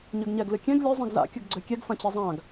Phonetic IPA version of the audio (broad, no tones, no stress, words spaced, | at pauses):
ɲøɡɲɛɡ lɨkʲɛ̃ɡ lʲø zˤĩɡza̰ kʲɐɡɡ͡ǀøkʲɛɡ fɐ̃t͡ɕizˤãɡ